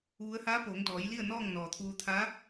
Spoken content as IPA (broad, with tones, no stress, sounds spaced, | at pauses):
ʋ u˧˥ ə̯ h aː˧˥ p oː˩˧ ŋ d ɔː˩˧ j l i˥˨ ə̯ n ɔː˥˨ ŋ n ɔː˩ t̪ʰ uː˧ t̪ʰ a˧˥